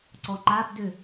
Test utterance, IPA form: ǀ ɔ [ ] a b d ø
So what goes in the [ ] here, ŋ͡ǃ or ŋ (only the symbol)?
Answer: ŋ͡ǃ